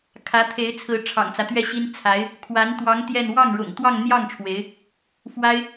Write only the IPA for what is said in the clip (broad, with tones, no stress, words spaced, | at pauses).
kʰä˧˥t̪ʰe˧˥ɪ̯t͡sʰɹ̩˧˥ ʈ͡ʂʰɑ̰˨˩ŋt͡sä˦t̪ɥɛ˥˩ɕi˥n t͡sʰa˧˥ɪ̯ | kʰwa˧˥nt̪wɑ˧˥ŋ t̪jɛ˥˧n wɑ˥˩ŋɻʊ̰˨˩ŋt̪wɑ˥˧ŋ n̪jɑ˥˩ŋ ʈ͡ʂʰwe˧˥ɪ̯ | fwa˥ɪ̯